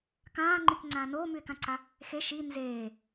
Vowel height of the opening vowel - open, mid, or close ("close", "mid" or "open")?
open